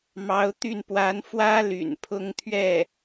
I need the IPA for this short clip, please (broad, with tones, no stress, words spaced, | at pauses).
mɑ˧˥ʊ̯t̪y˥˩n pwa˧˥nfwä˥ ly̰˨˩npʰʊ˥ŋt̪ʰɥɛ˥˩